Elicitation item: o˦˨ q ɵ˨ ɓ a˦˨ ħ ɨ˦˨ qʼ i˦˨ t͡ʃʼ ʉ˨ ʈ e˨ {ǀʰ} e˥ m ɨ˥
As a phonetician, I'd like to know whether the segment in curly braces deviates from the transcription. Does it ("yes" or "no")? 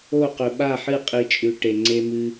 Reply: yes